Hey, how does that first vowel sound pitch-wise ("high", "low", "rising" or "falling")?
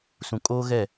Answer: low